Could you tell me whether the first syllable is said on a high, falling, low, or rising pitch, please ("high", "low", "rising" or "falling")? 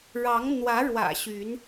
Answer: rising